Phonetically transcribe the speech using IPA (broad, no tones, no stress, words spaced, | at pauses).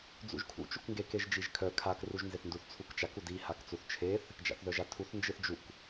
d͡zṵʒkʰṵ t͡ʃukŋɡe keʒd͡ʒiʒkʰœ kʰak ruʒnzeθnduθ t͡sʰukt͡ʃak udi hakt͡suθt͡ʃʰeθ | d͡ʒa̰θðœʒatʰuθ nd͡ʒɯθd͡ʒuk